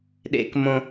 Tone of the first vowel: high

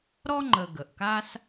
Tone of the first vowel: high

